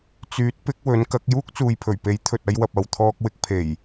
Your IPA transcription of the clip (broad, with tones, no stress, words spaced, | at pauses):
t͡syː˨˥t̚pɪ˨˥k̚ wɵ˨˥nkɐ˨˥k̚ juː˥k̚t͡suː˨jpʰɵ˨˩ɥpe˨˥j t̪ʰɵ˨t̚ɐ˧jwɐ˨p̚ ɐ˨wt̪ʰɔː˧k̚wɪ˧k̚pʰe˨˩j